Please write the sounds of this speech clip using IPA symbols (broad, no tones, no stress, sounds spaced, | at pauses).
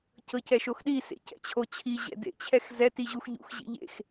c ɤ c ɛ ʃ o x ɗ i s ḛ c ɛ̰ t͡ɕʰ o t͡ɕʰ i ʑ ɛ̰ d ḛ t͡ɕʰ ɛ x z ɛ t i ʑ u x ʎ ṵ x ʑ ḭ ʎ ḛ x